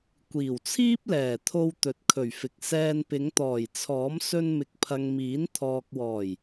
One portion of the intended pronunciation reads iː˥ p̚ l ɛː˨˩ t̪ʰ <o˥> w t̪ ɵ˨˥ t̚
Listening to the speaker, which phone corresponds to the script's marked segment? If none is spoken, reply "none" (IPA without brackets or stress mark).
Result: o˧